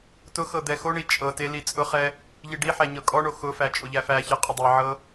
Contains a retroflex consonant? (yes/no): yes